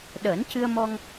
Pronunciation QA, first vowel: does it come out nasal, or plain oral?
oral